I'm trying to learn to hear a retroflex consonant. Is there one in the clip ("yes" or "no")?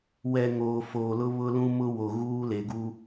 no